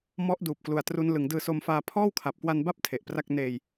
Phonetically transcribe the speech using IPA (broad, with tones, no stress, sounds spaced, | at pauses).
m ɔ˦˥ ʔ d uː˨˩ p̚ k l u˨˩ a̯ t r u˦˥ n l ɯ˩˦ ŋ d ɯː˧ s o˧ m f aː˧ pʰ ɔː˥˩ w kʰ a˨˩ p̚ k w a˧ n b a˥˩ p̚ tʰ e˨˩ ʔ p r a˥˩ k̚ n eː˧ j